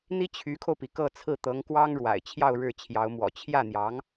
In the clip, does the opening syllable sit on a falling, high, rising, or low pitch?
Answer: high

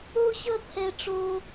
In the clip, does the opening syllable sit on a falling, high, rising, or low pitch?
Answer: high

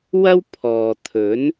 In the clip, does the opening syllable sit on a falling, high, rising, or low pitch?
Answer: high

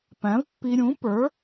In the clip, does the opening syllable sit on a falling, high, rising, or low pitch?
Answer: rising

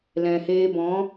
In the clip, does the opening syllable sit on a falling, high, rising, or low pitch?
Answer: low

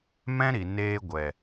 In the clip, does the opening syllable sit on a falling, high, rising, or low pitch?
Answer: high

